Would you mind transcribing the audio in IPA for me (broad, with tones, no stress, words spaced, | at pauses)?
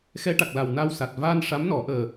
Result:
xɛ˧˥ʈa˨˩k̚la˨˩wna˧w sa˨˩t̚vaː˧nʂa˧˥mnɔ˨˩˦ ʔəː˨˩